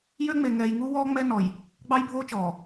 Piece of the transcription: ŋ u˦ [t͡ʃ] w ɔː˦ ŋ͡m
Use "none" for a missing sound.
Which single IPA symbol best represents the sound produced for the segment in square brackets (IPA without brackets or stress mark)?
none